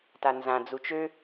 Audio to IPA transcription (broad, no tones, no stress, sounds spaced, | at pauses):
t a n z ã d͡z u t͡ʃ ø